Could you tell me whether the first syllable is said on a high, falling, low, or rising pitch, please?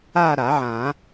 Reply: falling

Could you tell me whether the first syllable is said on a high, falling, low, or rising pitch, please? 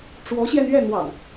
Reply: rising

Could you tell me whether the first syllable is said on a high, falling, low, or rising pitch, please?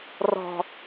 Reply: low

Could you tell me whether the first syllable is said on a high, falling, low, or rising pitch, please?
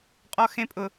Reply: high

